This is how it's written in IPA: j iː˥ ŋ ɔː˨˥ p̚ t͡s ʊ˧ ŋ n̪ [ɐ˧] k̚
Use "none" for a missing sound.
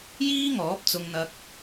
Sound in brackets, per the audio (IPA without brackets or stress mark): ɐ˧